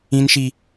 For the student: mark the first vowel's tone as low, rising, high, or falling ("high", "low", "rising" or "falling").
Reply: low